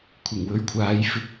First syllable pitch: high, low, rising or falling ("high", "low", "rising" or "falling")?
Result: low